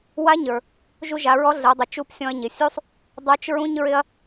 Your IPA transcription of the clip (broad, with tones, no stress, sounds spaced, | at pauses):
w a˧˥ ɲ ə˞˩ | ʒ u˧ ʒ a˩˧ ɹ ɔ˧˥ ɮ ə˞˩˧ dˤ ʊ˩˧ t͡ʃ u˧˥ p sʲ ɔ̃˧ ɐ̯ ɲ ɪ˩ sʲ u˥ sˤ | dˤ ə˞˧˥ t͡ʃ ɹ ũ˥ ɲ ɹ ɪ˥ ɐ̯